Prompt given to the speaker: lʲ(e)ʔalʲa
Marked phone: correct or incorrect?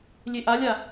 correct